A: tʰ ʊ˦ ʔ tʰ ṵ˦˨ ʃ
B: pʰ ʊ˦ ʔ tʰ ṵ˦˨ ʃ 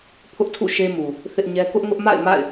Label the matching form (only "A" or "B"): B